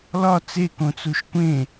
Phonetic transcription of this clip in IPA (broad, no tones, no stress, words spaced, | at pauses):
lɒ t͡sekõt͡suʃ kʷẽ